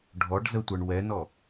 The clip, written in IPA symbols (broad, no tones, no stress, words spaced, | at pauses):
ɖʱɔɖ zətʷə˞ɳ wɛnɔ